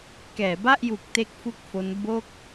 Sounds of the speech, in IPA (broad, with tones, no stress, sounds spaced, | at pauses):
k ɛː˩˦ b a˥˩ ʔ j u˨˩ k̚ t e˥˩ k̚ f u˥˩ k̚ f o˦˥ n b o˥˩ k̚